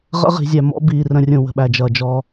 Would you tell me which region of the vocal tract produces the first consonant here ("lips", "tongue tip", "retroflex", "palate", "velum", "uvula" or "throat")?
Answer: uvula